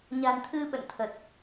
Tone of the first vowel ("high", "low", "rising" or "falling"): low